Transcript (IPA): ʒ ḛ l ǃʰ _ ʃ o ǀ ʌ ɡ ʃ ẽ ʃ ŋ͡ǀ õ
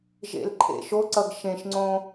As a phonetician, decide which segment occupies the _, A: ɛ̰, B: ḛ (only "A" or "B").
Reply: B